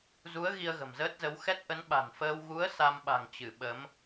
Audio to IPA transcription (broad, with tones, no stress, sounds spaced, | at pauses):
z u˨˦ ə̯ ɣ i˧ ə̯ ɣ ə̤˨˩ m z əː˦˥ t̚ z ə˨˦ w x ɛ˦˥ t̚ ʔ ə˨˦ n ɓ a̤˨˩ n f əː˧ w ɣ u˨˦ ə̯ s a˧ m ɓ a̤˨˩ ŋ t͡ɕ ɨ˧˩ ɓ ə˨˦ m